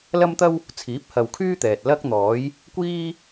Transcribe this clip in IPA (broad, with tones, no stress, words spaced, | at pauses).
lɐ˥mt̪ɐ˥w | t͡sʰiː˨˥p̚hɐ˨wkʰyː˥ t̪ɛː˨t̚ lɐ˥k̚n̪ɔː˨˥j | kʷiː˥